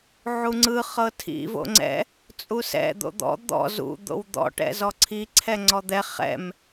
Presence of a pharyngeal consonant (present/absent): present